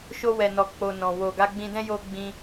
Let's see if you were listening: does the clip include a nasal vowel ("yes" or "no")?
yes